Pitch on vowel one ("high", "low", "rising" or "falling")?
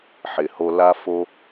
low